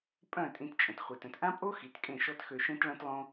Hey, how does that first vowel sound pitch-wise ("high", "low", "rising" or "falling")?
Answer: falling